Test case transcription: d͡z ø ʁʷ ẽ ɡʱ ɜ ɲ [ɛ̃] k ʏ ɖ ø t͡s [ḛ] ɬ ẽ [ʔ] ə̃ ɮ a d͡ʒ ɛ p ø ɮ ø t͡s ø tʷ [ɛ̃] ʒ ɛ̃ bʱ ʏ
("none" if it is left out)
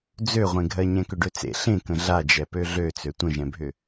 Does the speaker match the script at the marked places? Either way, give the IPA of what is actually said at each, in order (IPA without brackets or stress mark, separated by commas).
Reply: ɛ̃, ḛ, k, ə̃